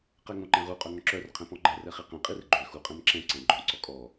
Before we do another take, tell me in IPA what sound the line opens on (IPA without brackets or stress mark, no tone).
q